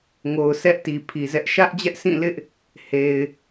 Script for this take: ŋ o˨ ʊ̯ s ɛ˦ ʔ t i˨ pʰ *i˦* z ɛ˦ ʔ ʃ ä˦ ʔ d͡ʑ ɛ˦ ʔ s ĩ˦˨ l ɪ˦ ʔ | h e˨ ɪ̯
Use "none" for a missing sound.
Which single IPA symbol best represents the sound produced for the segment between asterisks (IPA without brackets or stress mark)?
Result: i˨